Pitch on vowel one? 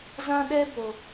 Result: high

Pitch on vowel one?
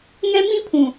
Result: high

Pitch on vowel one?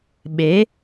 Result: rising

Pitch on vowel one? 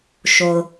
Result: low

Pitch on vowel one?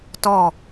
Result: falling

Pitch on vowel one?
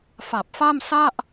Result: low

